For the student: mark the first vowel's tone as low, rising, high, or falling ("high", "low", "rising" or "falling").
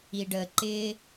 low